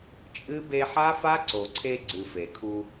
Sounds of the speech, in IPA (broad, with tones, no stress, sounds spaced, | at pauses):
t͡ʃʼ ɨ˦ b e˧ ħ a˦ f a˦ ǀ o˨ ǀʰ e˧ ɡ͡ǀ ɨ˨ f e˨ kʰ u˧